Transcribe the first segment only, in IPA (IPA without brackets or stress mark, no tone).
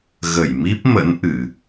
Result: ɣ